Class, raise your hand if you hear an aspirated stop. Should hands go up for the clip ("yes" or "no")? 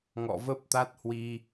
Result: no